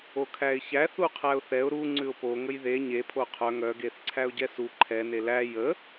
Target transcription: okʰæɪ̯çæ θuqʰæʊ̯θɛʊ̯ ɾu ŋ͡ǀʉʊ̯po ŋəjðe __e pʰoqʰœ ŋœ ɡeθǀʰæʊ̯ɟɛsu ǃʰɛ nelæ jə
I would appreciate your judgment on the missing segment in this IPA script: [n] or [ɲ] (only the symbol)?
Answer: ɲ